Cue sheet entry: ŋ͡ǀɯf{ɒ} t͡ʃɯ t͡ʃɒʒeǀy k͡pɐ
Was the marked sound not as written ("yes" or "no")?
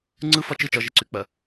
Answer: no